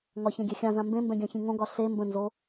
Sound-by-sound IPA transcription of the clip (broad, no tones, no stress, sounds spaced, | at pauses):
ŋ ɒ ç ɛ̃ ɡʲ ɛ xʲ ã z ã m b ẽ m b ɛ̃ ɡʲ ã ç ĩ ŋ õ ɡ ɒ ɬ e m b ə̃ n z o